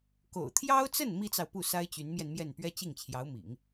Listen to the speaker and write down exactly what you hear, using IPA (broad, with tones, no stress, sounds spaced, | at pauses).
k o̰˨˩ ʊ̯ t̪ʰ j ɑ˥ ʊ̯ t͡s ə˥˩ n m i˥ t͡s ɑ˨ ʊ̯ p u˥˩ s a˥ ɪ̯ t͡ɕ y˧˥ n m j ɛ˧ n m j ɛ˥˩ n p ɥ ɛ˥ t͡ɕ i˥˩ ŋ t͡ɕʰ j ɑ˧˥ ʊ̯ m ḭ˨˩˦ ŋ